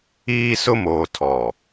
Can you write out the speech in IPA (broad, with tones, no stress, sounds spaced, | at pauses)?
iː˦ s ʊ˦ m oː˨ tʰ ɔ˨